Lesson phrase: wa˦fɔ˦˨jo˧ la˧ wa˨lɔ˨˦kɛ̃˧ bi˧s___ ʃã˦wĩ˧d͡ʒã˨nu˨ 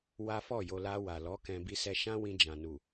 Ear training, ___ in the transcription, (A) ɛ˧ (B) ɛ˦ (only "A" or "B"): A